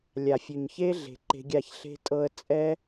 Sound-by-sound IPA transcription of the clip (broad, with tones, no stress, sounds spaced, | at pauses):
lʲ a˨ fʲ ʉ˨ ɲ ç e˦ ɮ e̤˨ ǃ e̤˧ ɡʲ a˦˨ ç ɬ e̤˧ tʼ ɤ˧ ə̯ t͡sʼ ɛ˦